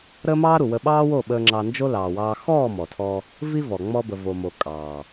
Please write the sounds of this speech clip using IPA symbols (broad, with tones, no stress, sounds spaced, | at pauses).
ɾ əː˦ m ɑː˦ ɾ u˨ w ə˧ ɓ ɑː˦ w o˦˨ ɓ əː˧ ŋ͡ǁ ɑ˧ n d͡ʒ o˦ l ɑː˨ w ɑː˧ x ɔː˦˨ m ɔ˨ tʰ ɔ˧ | v i˦ v ɔ˨ ŋ͡m ɔ˧ b ə˨ v o˨ m o˨ kʼ ɑː˨